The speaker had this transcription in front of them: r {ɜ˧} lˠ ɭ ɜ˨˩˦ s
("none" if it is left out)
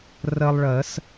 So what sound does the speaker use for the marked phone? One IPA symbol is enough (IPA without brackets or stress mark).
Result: ɜ˧